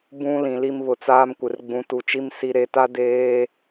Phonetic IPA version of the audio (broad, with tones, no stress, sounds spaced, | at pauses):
b ũ˨ l ĩ˨ l i˦ m β ʊ˨ t͡s aː˦ m kʷ ɪ˨ r ɡ͡b ũ˨ t u˨ t͡ʃ i˦ m s i˨ ɾ e˨ t a˦ d eː˦